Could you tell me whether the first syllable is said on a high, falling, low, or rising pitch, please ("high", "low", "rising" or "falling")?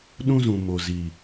high